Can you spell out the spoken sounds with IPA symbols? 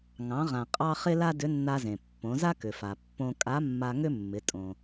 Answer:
ŋ ɑ̃˩˧ ʁ ã˩ qʼ ɑ˧ χ ɪ˥ l a˥ d ʏ˧˥ nː a˧ z ẽ˩ pː õ˩˧ z a˥ k ʏ˩ f a˩ pː õ˧ kʼ a˧˥ mː a˧ ŋ ʏ˥ mː ɪ˩˧ tʼ õ˩

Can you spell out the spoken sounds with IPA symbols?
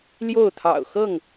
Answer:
l j o˥˨ ʊ̯ t̪ʰ ɑ̰˨˩ ʊ̯ x ɤ˥˨ ŋ

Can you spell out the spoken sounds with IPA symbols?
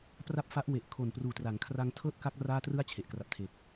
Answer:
p r a˥˩ p̚ f a˦˥ ʔ w e˨˩ ʔ kʰ o˨˩ n p r uː˨˩ t r a˩˦ ŋ kʰ r a˧ ŋ tʰ ɤː˥˩ t̚ k a˦˥ k̚ r aː˥˩ t r ɯ˥˩ a̯ t͡ɕʰ e˨˩ ʔ k r a˨˩ p̚ tʰ eː˨˩ k̚

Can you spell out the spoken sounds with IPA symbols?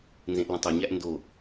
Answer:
n z ẽ ʔ l ə̃ tˤ ɵ ɲ æ ʔ n d o

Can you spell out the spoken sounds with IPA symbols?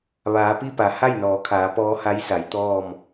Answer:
ʋ aː˩˧ p i˥˨ p a˩˧ h a˥˨ j n ɔː˩˧ kʰ aː˩˧ p ɔː˧˥ h a˧˥ j s a˩˧ j t̪ ɔː˥˨ m

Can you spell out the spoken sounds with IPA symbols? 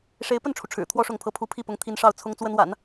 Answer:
ʂ e˧˥ ɪ̯ p ə˥˩ n ʈ͡ʂʰ u˩ ʈ͡ʂʰ ɻ̩˨˩ t̪ʰ w ɔ˥ ʂ ʊ˥˩ ŋ pʰ ɤ˥ pʰ u˥ pʰ i˥˩ p ʊ˧˥ ŋ t̪ʰ i˧˥ n ʂ ɑ˥˩ ʊ̯ t͡sʰ ʊ˥ ŋ t͡s w ə˥ n w a̰˨˩˦ n

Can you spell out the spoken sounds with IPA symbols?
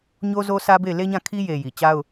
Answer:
ɲ o˦ z o˦ s ä˦ b e˦˨ ɪ̯ l e˦ ɲ ã˦˨ kʰ i˦ j e˨ j i˨ t͡ɕ a˦ ʊ̯

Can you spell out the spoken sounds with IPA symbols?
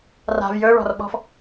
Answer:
r a̤ v j ɵ ɹ ɔ̤ r ɓ ɔ̤ f

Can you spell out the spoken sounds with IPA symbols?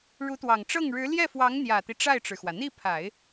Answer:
ɻ u˧˥ t̪ w ɑ˨˩ ŋ ʈ͡ʂ ɤ˥˩ ŋ ɻ ɻ̩˧˥ l j ɛ˥˩ f w ɑ˧˥ ŋ n̪ j ä˨˩ t̪ i˦ ʈ͡ʂ a˥˩ ɪ̯ ʈ͡ʂ ɻ̩˩ x w ä˩ n̪ i˥˩ pʰ a˨˩˦ ɪ̯

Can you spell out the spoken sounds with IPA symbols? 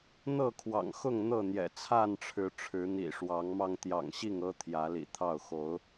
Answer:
n̪ ɤ˥˨ kʰ w ɑ̰˨˩ ŋ x ʊ˥˨ ŋ n̪ ɤ˥˨ n̪ j ɛ̰˨˩ t͡sʰ a˥˨ n ʈ͡ʂʰ ɻ̩˨˦ ʈ͡ʂʰ ɻ̩˨˦ n̪ ḭ˨˩ ʂ w ɑ˨˦ ŋ m ɑ˧ ŋ t̪ j ɑ̰˨˩ ŋ ɕ i˥˨ ŋ ɤ˦ t̪ʰ j ä˨˦ l ḭ˨˩ t̪ʰ ɑ˥˨ ʊ̯ x o˨˦ ʊ̯

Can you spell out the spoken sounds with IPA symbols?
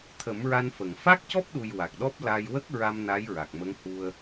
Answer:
t̪ʰ ə˨˩˦ m ɹ a˧ n f ə˨˩˨ ŋ f a˦˥ k̚ c ɔ˦˥ p̚ ɗ u˨˩ j w a˨˩ k̚ ɗ ɔ˦˥ p̚ l a˧ j w ə˦˥ k̚ ɹ a˧ m n a˧˥ j ɹ a˨˩ k̚ m ə˧˥ ŋ h u˧ ə̯

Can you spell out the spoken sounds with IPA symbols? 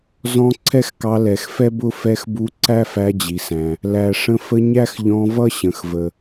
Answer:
z ɔ̃˧ ǀʰ ɛ˥ x k ɑ˧ l ɛ˩ x f ɛ˥ b ʊ˥ f ɛ˧ x b u˧ ǀ æ˥ f æ˧ d͡ʑ i˩ s æ̃˩ | l æ˩ ʂ ə̃˧ f ə˧ ɲ æ˥ x ʎ ɔ̃˧ v ʌ˥ ɕ ə̃˩ x v ə˩

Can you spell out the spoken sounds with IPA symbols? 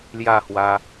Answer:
l j a˥˧ h w a˧

